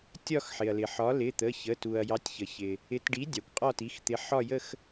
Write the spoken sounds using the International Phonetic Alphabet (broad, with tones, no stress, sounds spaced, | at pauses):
tʲ ɒ˥˧ x ħ ɪ˩ ɐ̯ l ɪ˩ ħ ɒ˨˥ l ɪ˩˧˩ t̪ ə˩˧˩ ç ə˩˧˩ t u˩ ɐ̯ j ɑ˨˥ tʲ ç ə˩ ç ɪ˩ | ɪ˨˥ t ɖ i˨˥ dʲ ɑ˩ kʷ qʼ ɒ˥˧ t i˩˧˩ x t̪ ɪ˨˥ ħ ɒ˥˧ j ə˥˧ x